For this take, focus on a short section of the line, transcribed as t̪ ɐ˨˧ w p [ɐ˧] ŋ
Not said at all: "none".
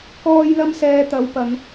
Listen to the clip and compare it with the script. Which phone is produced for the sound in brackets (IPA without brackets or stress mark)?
ɐ˨˧